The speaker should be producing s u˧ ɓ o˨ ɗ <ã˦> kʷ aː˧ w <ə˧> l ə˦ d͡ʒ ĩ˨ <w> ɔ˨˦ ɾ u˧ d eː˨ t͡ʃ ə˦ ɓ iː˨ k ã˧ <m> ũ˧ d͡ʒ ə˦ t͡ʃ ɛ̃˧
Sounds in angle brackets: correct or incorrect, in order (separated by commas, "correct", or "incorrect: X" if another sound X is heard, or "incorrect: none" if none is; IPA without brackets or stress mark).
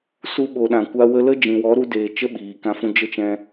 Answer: incorrect: ã˨, correct, correct, incorrect: f